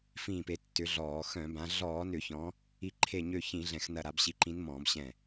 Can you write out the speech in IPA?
f ĩː˧˩ p e˨˦ tː ʏ˨˦ ɮ ɔː˧˩˧ x œ̃˧˩˧ b ã˨˦ ɮ ɔː˧˩˧ n ʏ˧˩˧ ç ɔ̃˨˦ | i˧˩ ǃʰ e˧˩ ɲ ø˧˩ ç ĩ˧˩˧ ɮ ɛ̃˧˩˧ x n ɐ˧˩ ɾ a˨˦ b ɕ i˨˦ ǃ ĩ˨˦ n m ɔ̃ː˧˩˧ b ɕ ɛ̃˧˩

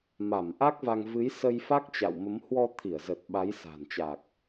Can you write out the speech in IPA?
m a˧˩ m ʔ a˦˥ k̚ v a˧ ŋ v ɨ˨˦ j s ə˧ j f a˦˥ k̚ t͡ɕ a̰˧˨ w m ə˨˦ m h w ɔ˧ t̪ʰ i˧˩ ə̯ z ə˨˩ t̚ ɓ a˨˦ j s a̤˨˩ n t͡ɕ a˨˩ k̚

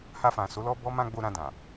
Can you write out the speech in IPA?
h a˧ f ã˨ s o˨˦ l ɔ˦ b ɔ˦ m ã˧ ɡ͡b o˧ ɾ ã˧ d ã˨

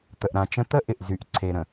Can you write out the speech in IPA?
t̪ ə˨ ʔ ɾ ã˨ t͡ʃ ə̃˦ t̪ ə˦ ʔ ɪ˨ ʔ z y˨ ʔ ǀʰ e˨ ɾ ə̃˨

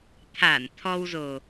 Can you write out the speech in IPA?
t̪ʰ a˧˩ n t̪ʰ ɔ˧ w z o˨˩

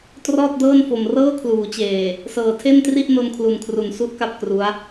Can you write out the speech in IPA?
t r ɔː˥˩ t̚ d ɤː˥˩ n f o˨˩ m r ɤː˥˩ kʰ l uː˩˦ t͡ɕ eː˨˩ | s ɤː˨˩ tʰ e˥˩ n t r i˥˩ ʔ n o˧ n kʰ l u˨˩ n kʰ r u˨˩ n s u˦˥ ʔ k a˥˩ p̚ k r u˦˥ a̯

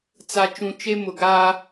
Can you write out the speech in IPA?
t͡s a˨ t͡ʃ ũ˨ t͡ʃ e˦ m ʊ˨ ɡ aː˦

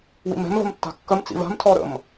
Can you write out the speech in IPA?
w ḭ m ɛ̤ m v ə̤ m tː a̤ kː ə m t͡s ḭ v a̤ m tʰ ɔ ɾ ə̰ m

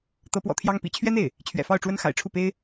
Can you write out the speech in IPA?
t̪ ɤ˧˥ p w ɔ̰˨˩ t̪ʰ j ɑ˥ ŋ p ḭ˨˩ t͡ɕʰ ɥ ɛ˥ n̪ e˥˩ ɪ̯ | t͡ɕʰ ɥ ɛ̰˨˩ f ɑ˥˩ ʊ̯ ʈ͡ʂ w ə˥ n x a̰˨˩ ɪ̯ ʈ͡ʂʰ u˥˩ p e˥ ɪ̯

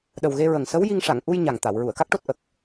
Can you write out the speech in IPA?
ɗ ə˨˩ w ɣ e˧ ɹ ə˨˩ ŋ s ə˧˥ w j i˧ ŋ ʂ a˨˩˨ ŋ ʔ u˧ j ɲ a˨˩ ŋ t̪ a˨˩˨ w ɹ u˨˩˨ ə̯ k a˦˥ k̚ ʈ o˦˥ t̚ ʔ ə˨˩ k̚

